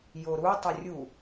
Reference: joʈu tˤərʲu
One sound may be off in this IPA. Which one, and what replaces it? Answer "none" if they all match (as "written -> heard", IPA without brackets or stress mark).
ʈ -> ɾ